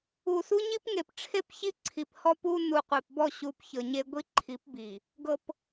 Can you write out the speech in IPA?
u˨ s u˦ ɲ i˦ p ŋ e˨ p ʈ͡ʂʰ e˦ p ç i˦ ǀʰ i˨ p h ɔ˦ p u˦ n u˨ qʷ e˨ p b ɔ˦˨ ɕ u˨ p ç ɤ˨ ɲ e˦ ɡʷ i˦ ǃʰ i˨˦ p b i˨ | ɡ ɤ˨ p

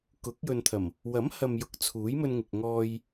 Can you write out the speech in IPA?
k ʊ˨˥ k̚ j ɵ˨ n t̪ʰ ɐ˨˩ m | w ɐ˨˥ m h ɐ˨ m j ʊ˨˥ k̚ t͡sʰ uː˨˥ j m ɵ˧ n ŋ ɪ˨ k̚ ŋ ɔː˧ j

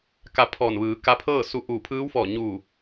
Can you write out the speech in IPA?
k a˩˧ pʰ ɔː˧˩ n ʋ ɯː˩˧ k a˧˥ pʰ ɤː˥˨ s u˧ ʔ uː˧˩ pʰ ɯː˧˥ w f ɔː˧˩ ɲ uː˧˩

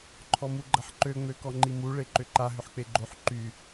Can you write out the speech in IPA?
ǃʰ ɔ m u ɡ͡ǃ ɐ ħ ǃ ø ŋ͡m ø k ɔ ŋ͡ǃ i m u ɭ e ǃ ʏ ǃ a ɦ ʏ ħ k͡p e ɡ͡ǃ o ħ ǃ y

